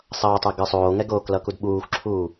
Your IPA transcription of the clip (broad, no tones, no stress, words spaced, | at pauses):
sˤʌːtˤɛ ɡɯsˤoːŋɛɡoːk lʌkudɓuːxʷǁʰuː